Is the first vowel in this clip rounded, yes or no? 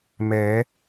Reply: no